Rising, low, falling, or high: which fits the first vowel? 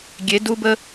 rising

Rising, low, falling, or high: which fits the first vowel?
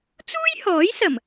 high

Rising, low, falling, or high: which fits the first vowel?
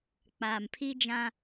low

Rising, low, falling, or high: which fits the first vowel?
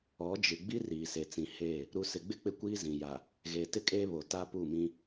rising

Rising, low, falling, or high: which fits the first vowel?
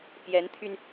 rising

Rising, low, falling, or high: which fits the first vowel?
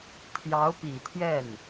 rising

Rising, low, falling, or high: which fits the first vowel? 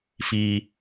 high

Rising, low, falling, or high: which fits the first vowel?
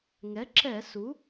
rising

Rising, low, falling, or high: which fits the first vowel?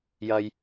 high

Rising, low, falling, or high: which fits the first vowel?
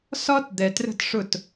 high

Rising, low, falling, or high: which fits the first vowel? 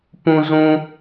high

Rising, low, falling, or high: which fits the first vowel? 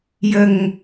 low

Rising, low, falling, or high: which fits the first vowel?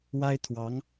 high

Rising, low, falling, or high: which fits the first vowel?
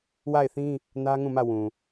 falling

